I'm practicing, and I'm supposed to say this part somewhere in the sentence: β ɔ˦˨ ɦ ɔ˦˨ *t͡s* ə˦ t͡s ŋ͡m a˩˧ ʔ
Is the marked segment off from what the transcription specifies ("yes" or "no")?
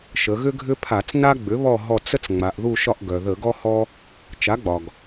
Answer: no